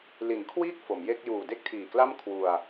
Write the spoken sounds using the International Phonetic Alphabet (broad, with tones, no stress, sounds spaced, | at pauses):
l i˩˦ n kʰ w iː˥˩ k̚ f o˩˦ m j e˥˩ k̚ j uː˨˩ d e˥˩ k̚ tʰ iː˨˩ k l a˥˩ m kʰ w u˧ a̯